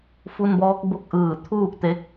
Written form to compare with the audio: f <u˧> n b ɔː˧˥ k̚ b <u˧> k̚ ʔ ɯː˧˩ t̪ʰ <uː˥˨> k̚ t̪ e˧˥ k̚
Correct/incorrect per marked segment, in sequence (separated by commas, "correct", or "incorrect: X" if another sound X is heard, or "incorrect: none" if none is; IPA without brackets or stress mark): correct, incorrect: o˧, correct